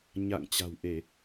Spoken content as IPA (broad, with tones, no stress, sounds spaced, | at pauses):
ɲ a̰˧˨ ŋ t͡ɕ a̤˨˩ w ʔ e˧˩˨